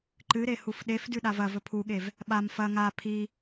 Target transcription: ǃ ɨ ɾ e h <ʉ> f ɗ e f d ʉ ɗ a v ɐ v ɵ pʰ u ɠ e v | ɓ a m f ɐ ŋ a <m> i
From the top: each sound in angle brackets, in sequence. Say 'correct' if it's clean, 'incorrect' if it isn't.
incorrect, incorrect

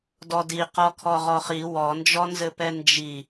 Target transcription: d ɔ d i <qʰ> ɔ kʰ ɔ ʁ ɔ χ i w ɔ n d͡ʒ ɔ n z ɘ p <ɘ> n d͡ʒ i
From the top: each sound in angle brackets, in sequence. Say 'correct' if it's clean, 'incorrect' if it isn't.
incorrect, incorrect

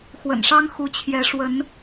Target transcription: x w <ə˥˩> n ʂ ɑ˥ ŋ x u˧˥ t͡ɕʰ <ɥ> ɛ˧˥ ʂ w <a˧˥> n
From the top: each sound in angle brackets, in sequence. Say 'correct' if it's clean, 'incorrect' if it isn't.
incorrect, incorrect, incorrect

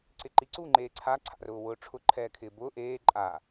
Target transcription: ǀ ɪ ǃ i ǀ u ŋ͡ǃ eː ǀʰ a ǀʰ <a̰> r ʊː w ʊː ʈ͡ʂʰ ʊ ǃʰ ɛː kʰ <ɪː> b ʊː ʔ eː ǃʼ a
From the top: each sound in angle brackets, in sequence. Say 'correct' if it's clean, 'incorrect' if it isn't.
correct, correct

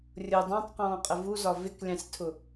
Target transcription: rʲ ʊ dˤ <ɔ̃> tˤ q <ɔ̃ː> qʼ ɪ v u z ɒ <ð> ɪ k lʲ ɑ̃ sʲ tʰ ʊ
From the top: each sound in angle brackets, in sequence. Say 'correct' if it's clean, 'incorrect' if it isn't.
incorrect, correct, incorrect

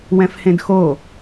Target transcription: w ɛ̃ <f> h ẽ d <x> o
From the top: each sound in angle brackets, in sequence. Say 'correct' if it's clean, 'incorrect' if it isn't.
correct, correct

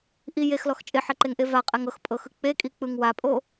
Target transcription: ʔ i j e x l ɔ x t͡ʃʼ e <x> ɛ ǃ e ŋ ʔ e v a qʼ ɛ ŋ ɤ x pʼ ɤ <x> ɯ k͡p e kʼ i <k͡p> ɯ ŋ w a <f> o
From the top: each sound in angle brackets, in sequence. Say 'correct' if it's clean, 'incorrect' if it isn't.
incorrect, correct, correct, incorrect

